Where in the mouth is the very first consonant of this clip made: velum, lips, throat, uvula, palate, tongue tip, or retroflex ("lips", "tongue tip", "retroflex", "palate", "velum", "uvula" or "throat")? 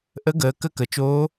throat